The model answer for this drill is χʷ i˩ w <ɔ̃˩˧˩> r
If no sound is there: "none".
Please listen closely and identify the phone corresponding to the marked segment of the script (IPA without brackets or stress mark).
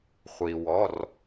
ɔ˩˧˩